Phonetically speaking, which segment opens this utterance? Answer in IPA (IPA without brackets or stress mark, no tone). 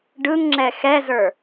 ɖ